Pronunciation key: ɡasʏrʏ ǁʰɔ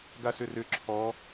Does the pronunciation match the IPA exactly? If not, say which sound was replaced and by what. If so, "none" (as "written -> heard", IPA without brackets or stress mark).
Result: none